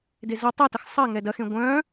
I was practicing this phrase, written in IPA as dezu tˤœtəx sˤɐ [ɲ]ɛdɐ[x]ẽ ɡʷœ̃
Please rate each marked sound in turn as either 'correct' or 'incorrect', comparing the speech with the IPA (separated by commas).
incorrect, correct